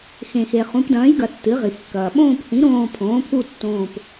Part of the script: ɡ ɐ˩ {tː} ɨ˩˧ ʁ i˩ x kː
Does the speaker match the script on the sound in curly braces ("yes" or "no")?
yes